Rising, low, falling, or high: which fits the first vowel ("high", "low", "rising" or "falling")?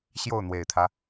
falling